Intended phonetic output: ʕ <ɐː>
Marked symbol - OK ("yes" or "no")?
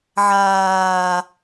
no